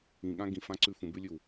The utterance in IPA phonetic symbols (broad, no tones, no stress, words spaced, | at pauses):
ĩɠã ɡĩfãǀʉ fũbʉlʲʉw